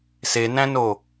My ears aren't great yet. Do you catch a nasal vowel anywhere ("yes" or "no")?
yes